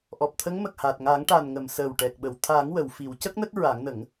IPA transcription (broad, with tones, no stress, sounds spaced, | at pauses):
ʔ ɔ˨˩ p̚ t̪ʰ ə˧˥ ŋ m ə˨˩ k̚ h a˨˩ t̚ ŋ a˨˩˦ ŋ ʈ a˨˩ n ŋ ə˨˩˨ m s əː˨˩ w ʈ ɛ˨˩ k̚ ɓ ə˨˩˨ w t̪ʰ a˨˩˦ ŋ w ə˨˩˨ w f i˨˩˦ w c ə˦˥ k̚ n ə˦˥ k̚ ɹ a˨˩˦ ŋ n ə˨˩˦ ŋ